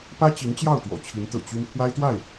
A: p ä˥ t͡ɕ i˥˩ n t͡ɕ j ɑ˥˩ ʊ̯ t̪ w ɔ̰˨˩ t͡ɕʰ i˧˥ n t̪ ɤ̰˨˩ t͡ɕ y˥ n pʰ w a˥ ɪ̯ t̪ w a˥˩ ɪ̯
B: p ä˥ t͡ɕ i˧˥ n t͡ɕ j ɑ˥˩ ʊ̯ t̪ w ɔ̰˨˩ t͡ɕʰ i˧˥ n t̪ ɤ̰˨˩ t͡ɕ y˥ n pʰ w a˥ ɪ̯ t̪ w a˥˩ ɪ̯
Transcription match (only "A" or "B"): B